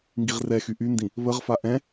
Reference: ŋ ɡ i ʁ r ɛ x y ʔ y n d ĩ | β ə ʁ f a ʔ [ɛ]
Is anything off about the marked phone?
yes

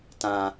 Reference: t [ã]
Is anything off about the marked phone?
no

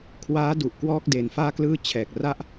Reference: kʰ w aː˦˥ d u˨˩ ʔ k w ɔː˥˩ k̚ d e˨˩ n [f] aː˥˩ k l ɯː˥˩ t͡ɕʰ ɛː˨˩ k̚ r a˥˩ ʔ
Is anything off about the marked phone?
no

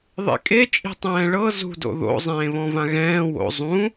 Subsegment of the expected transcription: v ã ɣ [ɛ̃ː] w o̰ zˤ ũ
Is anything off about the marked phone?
no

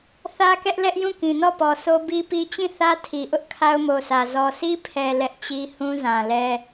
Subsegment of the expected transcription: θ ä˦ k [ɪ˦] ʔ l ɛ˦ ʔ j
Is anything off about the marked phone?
yes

